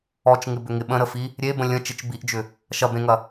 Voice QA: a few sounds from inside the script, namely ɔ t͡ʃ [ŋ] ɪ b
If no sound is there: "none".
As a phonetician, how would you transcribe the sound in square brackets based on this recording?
ŋ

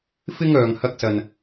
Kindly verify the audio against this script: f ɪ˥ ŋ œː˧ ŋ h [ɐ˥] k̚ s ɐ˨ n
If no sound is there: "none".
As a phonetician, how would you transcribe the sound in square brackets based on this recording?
ɐ˧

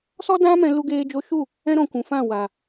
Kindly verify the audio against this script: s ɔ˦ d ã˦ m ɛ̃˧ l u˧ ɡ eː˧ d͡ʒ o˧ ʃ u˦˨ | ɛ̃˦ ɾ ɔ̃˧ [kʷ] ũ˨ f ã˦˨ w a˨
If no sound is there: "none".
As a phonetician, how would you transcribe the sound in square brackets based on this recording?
kʷ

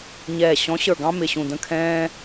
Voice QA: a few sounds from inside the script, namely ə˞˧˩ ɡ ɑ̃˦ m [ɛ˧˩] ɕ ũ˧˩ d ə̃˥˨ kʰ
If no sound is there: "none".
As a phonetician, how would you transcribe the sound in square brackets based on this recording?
ɪ˧˩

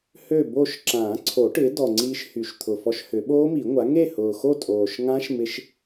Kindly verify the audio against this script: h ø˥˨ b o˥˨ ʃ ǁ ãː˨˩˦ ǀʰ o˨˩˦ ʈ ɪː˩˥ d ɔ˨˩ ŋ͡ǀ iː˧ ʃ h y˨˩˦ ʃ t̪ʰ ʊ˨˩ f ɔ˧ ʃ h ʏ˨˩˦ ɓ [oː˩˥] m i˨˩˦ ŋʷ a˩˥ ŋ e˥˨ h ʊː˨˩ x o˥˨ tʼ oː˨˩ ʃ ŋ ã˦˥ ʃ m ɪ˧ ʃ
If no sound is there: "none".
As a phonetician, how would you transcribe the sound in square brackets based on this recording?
oː˦˥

